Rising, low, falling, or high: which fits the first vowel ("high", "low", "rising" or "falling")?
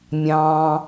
low